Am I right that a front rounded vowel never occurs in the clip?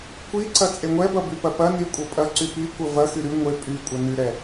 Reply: no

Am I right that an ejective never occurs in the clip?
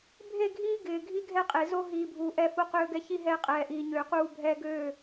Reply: no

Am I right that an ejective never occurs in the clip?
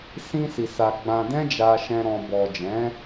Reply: yes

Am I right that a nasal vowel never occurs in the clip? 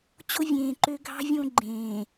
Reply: no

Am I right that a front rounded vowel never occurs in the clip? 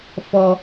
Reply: yes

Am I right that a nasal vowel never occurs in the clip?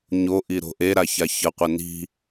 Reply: yes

